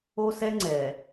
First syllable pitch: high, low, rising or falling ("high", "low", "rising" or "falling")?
high